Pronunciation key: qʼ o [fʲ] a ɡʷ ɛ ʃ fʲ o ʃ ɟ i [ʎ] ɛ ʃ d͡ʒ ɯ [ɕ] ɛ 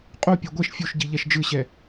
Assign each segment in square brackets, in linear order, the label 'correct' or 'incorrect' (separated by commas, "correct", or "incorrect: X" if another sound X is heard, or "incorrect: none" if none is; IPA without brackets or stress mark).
incorrect: pʲ, correct, correct